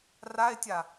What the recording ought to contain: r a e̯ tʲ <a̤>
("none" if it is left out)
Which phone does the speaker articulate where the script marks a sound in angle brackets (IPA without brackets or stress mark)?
a